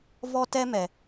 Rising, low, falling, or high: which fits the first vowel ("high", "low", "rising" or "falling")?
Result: high